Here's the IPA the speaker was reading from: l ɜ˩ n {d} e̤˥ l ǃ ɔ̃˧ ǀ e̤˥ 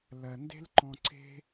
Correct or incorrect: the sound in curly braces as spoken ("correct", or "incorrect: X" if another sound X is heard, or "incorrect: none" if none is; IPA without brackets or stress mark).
correct